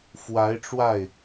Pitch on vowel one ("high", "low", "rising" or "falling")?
rising